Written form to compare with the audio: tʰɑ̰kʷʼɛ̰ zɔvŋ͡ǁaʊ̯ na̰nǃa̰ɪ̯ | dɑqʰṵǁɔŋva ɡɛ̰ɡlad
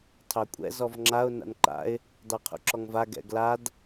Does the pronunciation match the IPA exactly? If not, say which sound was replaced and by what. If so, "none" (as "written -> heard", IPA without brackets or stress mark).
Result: ɑ̰ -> ɑ